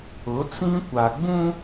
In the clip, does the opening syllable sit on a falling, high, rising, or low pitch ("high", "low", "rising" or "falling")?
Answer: rising